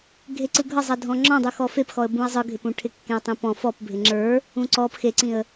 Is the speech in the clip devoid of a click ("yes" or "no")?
no